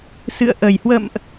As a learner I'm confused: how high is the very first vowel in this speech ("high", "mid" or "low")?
high